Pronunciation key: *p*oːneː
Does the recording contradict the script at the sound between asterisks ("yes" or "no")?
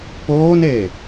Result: no